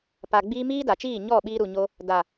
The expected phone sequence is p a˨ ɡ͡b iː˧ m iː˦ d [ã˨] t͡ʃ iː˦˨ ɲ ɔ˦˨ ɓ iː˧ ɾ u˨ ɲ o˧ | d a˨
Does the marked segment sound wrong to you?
yes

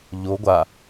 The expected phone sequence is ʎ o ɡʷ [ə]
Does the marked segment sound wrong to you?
yes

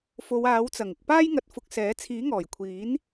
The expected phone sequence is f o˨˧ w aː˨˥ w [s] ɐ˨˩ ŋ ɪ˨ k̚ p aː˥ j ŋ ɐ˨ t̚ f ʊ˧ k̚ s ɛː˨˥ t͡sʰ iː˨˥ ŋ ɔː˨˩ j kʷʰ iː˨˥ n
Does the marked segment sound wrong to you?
yes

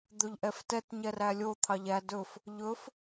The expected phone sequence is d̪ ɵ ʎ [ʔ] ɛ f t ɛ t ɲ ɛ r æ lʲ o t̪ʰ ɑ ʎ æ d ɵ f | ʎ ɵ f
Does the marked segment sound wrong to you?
no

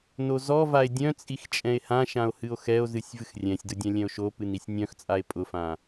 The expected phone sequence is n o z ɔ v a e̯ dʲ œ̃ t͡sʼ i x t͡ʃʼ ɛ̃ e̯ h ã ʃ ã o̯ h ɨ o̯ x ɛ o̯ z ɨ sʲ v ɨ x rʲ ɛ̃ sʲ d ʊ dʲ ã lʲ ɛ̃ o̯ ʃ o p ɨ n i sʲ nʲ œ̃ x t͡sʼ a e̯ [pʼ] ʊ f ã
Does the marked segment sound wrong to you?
no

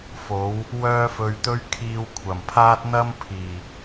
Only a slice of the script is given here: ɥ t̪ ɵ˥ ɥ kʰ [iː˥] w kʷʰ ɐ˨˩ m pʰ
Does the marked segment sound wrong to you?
yes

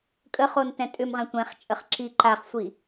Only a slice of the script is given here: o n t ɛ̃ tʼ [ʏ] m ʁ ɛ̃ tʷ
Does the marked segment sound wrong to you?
no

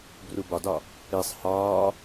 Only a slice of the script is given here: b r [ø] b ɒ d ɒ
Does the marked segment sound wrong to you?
yes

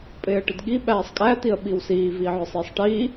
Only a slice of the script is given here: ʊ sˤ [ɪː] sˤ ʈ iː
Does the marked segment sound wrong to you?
yes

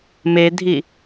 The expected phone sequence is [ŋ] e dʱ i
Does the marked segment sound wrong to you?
yes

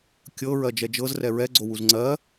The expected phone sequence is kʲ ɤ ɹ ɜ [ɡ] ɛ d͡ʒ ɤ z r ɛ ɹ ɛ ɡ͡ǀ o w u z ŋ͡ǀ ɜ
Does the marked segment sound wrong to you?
yes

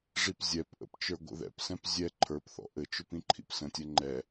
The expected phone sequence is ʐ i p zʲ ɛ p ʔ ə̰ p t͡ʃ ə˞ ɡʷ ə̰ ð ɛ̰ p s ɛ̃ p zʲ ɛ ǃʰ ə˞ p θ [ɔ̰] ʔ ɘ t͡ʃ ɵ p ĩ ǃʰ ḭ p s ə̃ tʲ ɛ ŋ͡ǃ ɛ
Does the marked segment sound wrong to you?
no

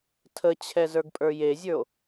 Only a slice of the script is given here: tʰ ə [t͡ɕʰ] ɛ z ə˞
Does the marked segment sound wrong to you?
no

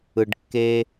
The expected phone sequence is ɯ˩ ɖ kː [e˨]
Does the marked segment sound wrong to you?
no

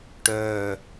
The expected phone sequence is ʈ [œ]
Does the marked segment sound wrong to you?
no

